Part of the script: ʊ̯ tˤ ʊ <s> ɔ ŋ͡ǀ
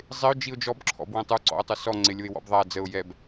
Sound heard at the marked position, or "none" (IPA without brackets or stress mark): s